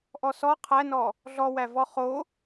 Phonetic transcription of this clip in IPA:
ʔɔsɔ qʰænɔ | ɮɔwævɔ χo

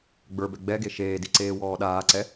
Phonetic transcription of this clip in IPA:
ɡ͡bə˞bɛ ɡ͡bɛɡe ʃeːdi ǀeːwɔːɗaːǀɛ

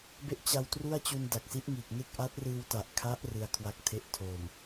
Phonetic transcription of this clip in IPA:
be˥˩ʔt͡ɕa˧wtru˥˩a̯t͡ɕu˧n da˨˩k̚si˦˥ʔŋiː˨˩k̚ne˥˩k̚ ʔa˦˥t̚rɯː˧wta˨˩ʔkʰa˦˥ʔ rɯ˧a̯kʰwa˦˥k̚tʰe˥˩ʔ tʰo˨˩m

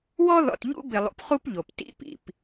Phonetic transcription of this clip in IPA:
wɔ˦ðɔ̰˨t ʎṵ˦bɪ˨lˠṵ˨pχu˦p ʎo˨p tḭ˦ pḭ˨p

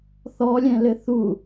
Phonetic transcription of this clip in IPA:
θɔlʲɛ̃lɘ θu

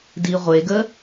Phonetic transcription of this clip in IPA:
di ʁʷeɡə

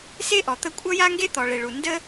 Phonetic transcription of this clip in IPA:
se˥ʔɔ˩ t̪ə˥ kʷʼʌ˥ja˥ŋɡe˥ t̪ɔ˩ɭe˩ɭu˩ ndə˥

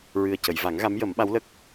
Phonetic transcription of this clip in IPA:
ɹɨ˨˩ə̯cə˨˩˨jva˨˩˦ŋ ɣa˧˥mjə˨˩˦m ɓa˧˥wlə˦˥k̚

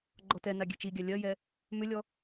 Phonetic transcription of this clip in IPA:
ɡ͡ǃɔtɛna ɡʲɛt͡ʃiɡʲa lʲɜjɛ | mʏlʲɔ

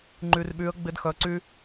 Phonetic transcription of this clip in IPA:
ŋ͡ǃy˧r ɓy˧˥ə̯ɡ͡bɪ˥dxœ˧˥ǀy˥

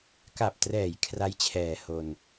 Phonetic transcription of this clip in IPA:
ka˨˩p̚trɛː˩˦j kʰra˦˥jt͡ɕʰɛː˨˩ ho˧n

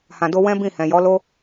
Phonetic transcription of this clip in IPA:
hã˨do˧ wɛ̃˦bĩ˦˨ hɛ̃˨jɔ˨˦lo˦

